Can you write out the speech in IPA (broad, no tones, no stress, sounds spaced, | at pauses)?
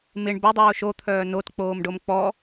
m ɪ ɳ b ɵ dˤ oː ʃ o t̪ʰ œː n o t k͡p oː m ɖ o m k͡p ɔ